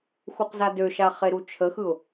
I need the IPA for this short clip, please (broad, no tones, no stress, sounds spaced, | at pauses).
x u q z a d ø ʃ a χ e ɾ u t͡ʃʰ ə x ɯ ʊ̯